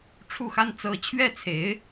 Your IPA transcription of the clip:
ʈ͡ʂʰu˥˩xa˥n t͡sɤ˧˥t͡ɕʰɥɛ˥˩t͡sʰe˧˥ɪ̯

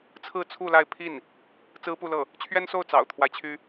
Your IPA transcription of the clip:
t͡sʰɹ̩˥˧t͡sʰu˥˧ la˥˧ɪ̯ pʰi˥˩n | t͡sɹ̩˥pu˥˧lɤ˥˩ | t͡ɕʰɥɛ˥nso˥˩ʊ̯ t͡sɑ̰˨˩ʊ̯t̪ʰwa˦ɪ̯t͡ɕʰy˥

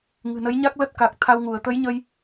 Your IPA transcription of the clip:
ŋɨ̤˨˩nə˨˦jɲa˦˥k̚ lə˦˥t̚ka˨˩k̚t̪ʰa˧wŋu˧˩ə̯ t̪ə˨˦jɲə˧j

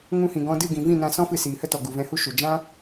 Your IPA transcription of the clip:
ŋũ˧hĩ˨ɡɔ̃˧dɨ˦˨ ɡĩ˨ vĩ˦˨nã˧sɔ̃˦ fɨ˧siː˨hə˦tɔ˨ ɡu˨vɛ̃˧hu˦ ʃu˨ d͡ʒã˦

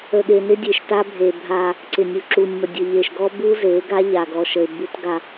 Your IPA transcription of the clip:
ə˨ɠe˨nɪ˦ dʲe˨ʃta˦ bʱe˨ bʱa˦ | ǀɪ˨nʲu˨ǁu˨nʲmə˨ dʲə˨ʎe˨ʃɡɔ˦ bu˦ze˨˦ɡa˦ ʎa˨ɡɔ˨ʃə˨ɪ̯ bu˦t ɡa˦

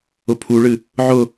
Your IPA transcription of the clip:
ʊpʰuɭɨ | ʕʊ

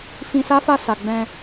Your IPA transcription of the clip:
fĩ˧sa˦fa˦˨ sa˨ ɡ͡bɛ̃˧

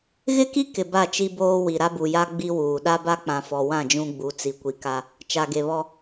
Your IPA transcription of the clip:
ɣɪ˦ki˦ kɪ˨ ba˦˨t͡ʃi˦boː˦wi˨ ɾa˦bu˨ja˦ ɡ͡bi˦wuː˨ ɗa˦ba˦k͡pã˨ fɔ˨wã˦˨ d͡ʒũ˦ɡ͡bu˨˦ t͡si˨kʷi˨ka˦ | t͡ʃa˨ɡe˨βɔ˦

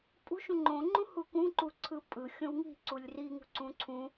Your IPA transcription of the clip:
pʼṳ ʃũŋ͡ǃõŋ͡ǃũ hukũǃuǀʰɯ pʼɯ xʲõwŋi̤ ǀulʲriŋṳ ǀũǀʰũ

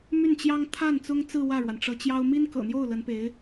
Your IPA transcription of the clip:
my˥˩nt͡ɕjɑ˥ŋ t̪ʰa˥˩n t͡sʊ˥ŋt͡sɹ̩˥˧ wä˥˩ɻwa˩nʈ͡ʂɤ˧˥t͡ɕjɑ˥ʊ̯ mi˥nkɤ̰˨˩n̪jo˥˩ʊ̯ lə˧˥npe˧˥ɪ̯

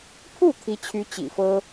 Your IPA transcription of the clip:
pʰu˥˩ t̪ʰi˧˥t͡ɕʰy˧˥ t͡ɕḭ˨˩fɤ˥

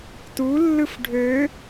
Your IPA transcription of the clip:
tulːɯf ɖʱø

